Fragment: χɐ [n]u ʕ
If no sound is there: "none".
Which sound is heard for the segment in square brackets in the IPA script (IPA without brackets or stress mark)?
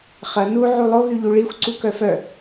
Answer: n